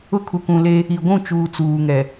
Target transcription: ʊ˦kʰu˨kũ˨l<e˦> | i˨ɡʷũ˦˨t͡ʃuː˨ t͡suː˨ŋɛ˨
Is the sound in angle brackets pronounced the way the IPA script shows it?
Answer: yes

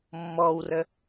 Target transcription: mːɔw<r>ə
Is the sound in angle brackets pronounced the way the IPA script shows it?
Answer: yes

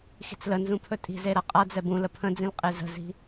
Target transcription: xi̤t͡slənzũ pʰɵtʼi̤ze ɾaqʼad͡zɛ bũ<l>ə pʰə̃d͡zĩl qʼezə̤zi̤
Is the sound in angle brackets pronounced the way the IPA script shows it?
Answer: yes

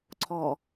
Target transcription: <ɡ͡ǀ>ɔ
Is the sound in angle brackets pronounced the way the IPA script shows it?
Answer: no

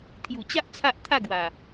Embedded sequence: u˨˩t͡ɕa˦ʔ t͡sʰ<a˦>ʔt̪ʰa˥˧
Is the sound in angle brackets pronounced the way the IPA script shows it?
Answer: yes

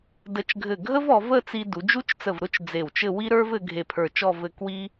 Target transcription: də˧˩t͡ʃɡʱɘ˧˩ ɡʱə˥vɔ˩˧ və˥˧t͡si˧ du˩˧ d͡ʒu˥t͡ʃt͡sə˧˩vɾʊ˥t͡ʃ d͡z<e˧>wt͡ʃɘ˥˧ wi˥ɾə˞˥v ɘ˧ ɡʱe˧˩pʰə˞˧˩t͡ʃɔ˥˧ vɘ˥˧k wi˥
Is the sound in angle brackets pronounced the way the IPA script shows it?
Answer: no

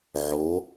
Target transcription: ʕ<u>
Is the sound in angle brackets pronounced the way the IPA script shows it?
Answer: no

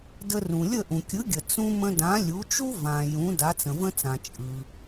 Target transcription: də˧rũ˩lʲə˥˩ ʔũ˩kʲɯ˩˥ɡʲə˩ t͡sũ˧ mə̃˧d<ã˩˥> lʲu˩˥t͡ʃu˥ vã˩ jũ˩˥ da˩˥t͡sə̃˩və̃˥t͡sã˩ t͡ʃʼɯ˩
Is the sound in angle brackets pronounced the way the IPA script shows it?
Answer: yes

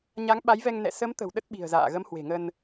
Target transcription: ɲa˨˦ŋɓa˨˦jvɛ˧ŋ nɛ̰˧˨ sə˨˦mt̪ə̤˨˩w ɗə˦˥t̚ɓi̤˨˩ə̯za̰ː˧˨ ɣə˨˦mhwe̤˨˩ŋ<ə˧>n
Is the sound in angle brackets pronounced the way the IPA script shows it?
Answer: yes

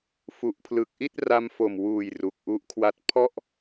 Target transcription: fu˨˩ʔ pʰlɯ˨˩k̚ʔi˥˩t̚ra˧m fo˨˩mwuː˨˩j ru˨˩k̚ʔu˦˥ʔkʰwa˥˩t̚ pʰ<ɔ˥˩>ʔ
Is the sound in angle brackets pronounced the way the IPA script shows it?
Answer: yes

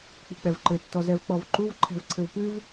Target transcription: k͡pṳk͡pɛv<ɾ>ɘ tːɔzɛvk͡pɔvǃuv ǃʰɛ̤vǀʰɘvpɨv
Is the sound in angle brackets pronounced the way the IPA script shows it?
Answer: no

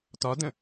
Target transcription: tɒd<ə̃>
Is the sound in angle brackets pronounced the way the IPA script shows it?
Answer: yes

